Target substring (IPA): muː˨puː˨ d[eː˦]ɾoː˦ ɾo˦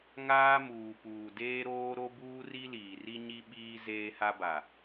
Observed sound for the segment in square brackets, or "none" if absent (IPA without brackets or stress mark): eː˦